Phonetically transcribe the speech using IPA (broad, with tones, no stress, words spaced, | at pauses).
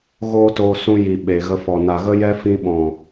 ɣoː˦toː˧sũ˧ ji˨ ɓe˨ɣə˧fɔ˨ na˨ɣə˦jɛ˦fĩ˧ ɓɔ̃˨